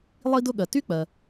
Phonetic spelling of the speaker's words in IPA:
lˠ i˥ d ʊ˥ ɠ ɜ˩ t y˥ k͡p ɜ˩

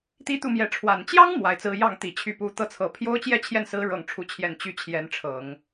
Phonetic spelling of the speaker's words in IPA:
t̪ i˥˧ t̪ u˥˩ m j ɛ˧˥ ʈ͡ʂʰ w a˨˩ n t͡ɕ j ɑ˥ ŋ m w a˧˥ ɪ̯ t͡s ɹ̩˥ j ɑ˥˩ ŋ t̪ i˨˩ t͡ɕʰ y˧˥ p u˧˥ t̪ ɤ˥˩ t͡sʰ ɤ˧˥ pʰ j o˥ ʊ̯ t͡ɕ j ɛ˥˧ t͡ɕʰ j ɛ˥˩ n s ɹ̩˧˥ ɻ ɤ˥˩ ŋ ʈ͡ʂʰ u˥ t͡ɕʰ j ɛ˥˧ n t͡ɕ y˥˩ t͡ɕʰ j ɛ˧˥ n ʈ͡ʂʰ ɤ˨˩˦ ŋ

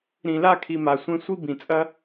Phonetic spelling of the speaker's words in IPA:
ɾ ĩ˨ l a˦˨ kʰ i˨ m a˨ sʷ ẽ˧ sʷ i˦ b ĩ˨ t͡sʼ ɐ˦

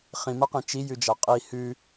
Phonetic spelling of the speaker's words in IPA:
χ ĩ m ɐ q ẽ t͡ʃ i j ʉ d͡ʒ a qʼ i h ʉ

